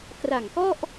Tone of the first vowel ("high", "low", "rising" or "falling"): low